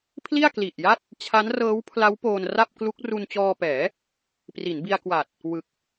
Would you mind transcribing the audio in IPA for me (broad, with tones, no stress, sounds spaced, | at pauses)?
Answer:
pʰ l i˥˩ a̯ k l i˨˩ ʔ j a˥˩ t̚ | t͡ɕʰ a˦˥ n r ɤː˦˥ w pʰ l a˦˥ w p oː˧ n r a˥˩ p̚ k l u˦˥ k̚ r u˧ n t͡ɕ ɔː˧ p ɛː˩˦ | p r i˩˦ n b i˧ a̯ k w a˨˩ t̚ | w ɯ˨˩ k̚